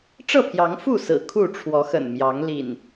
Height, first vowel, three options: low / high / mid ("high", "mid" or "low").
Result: mid